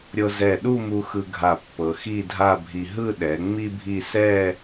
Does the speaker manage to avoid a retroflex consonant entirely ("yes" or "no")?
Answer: yes